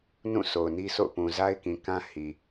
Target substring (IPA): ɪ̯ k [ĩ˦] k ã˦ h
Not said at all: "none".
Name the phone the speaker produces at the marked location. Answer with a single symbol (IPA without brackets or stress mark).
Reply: ĩ˨